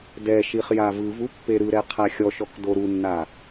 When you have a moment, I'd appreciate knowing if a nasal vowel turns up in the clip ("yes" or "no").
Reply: no